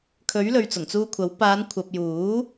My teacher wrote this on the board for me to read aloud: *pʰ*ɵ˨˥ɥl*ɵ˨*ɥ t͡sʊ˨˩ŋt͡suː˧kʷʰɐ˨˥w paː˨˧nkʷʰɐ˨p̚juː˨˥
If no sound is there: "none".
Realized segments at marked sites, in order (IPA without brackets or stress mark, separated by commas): kʰ, ɵ˨